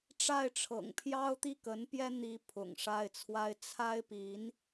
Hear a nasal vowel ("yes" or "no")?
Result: no